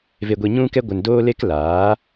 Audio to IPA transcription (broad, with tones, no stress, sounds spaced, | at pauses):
v e˧ ɡʷ i˧ ɲ ũ˦ k ɛ˦ ɡʷ ə˧ n d oː˦ l e˦ k l aː˨˦